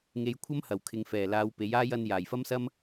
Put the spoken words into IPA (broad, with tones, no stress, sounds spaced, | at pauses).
ŋ e˨˧ j kʷʰ ɐ˥ m h ɐ˨˩ w kʰ ɪ˨ ŋ f ɛː˨˩ l aː˨˧ w p e˨˥ j aː˥ j ɐ˧ n j aː˨˩ j f ɐ˥ m s ɐ˥ m